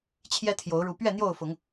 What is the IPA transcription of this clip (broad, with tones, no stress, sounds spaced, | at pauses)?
t͡ɕʰ j ɛ˦ t̪ʰ j o˨˦ ʊ̯ ɻ u˨˦ p ɥ ɛ˥˨ n̪ j o˥˨ ʊ̯ f ʊ˨˦ ŋ